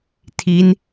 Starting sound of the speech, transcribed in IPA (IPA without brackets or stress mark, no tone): tʰ